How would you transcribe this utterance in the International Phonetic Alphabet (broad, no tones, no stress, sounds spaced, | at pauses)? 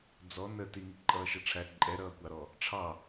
d͡z ɔ n ə t i ŋ i ǃʼ ʌː ʃ ʌ ʈ͡ʂʰ æ ǃʼ ɛ ɾ ʌː kʷ ɑ ɾ ɔ | ʈ͡ʂʰ ɑ